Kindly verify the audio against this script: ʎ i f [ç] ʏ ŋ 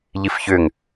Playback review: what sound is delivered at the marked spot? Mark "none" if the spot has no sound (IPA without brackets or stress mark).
ç